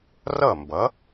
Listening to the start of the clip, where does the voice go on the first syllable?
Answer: falling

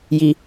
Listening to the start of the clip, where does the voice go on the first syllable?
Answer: low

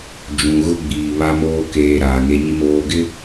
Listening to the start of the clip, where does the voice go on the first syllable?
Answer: low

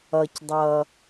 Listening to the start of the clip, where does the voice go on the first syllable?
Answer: low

